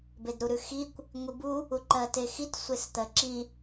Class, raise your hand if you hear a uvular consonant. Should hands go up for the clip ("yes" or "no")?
no